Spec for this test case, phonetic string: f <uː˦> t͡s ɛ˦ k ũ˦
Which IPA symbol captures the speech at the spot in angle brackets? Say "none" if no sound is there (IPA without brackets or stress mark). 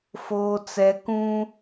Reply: oː˦